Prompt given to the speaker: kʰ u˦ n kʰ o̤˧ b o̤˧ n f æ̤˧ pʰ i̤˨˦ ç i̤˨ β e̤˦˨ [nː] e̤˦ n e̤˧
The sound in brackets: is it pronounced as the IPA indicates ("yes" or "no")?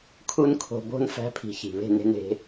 no